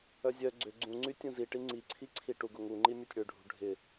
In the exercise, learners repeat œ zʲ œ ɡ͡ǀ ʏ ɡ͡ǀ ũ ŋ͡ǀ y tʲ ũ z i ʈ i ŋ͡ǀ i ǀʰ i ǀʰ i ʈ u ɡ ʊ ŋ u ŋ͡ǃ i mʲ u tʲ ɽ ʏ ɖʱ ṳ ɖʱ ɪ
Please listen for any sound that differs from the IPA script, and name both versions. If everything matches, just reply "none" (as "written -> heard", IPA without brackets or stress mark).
none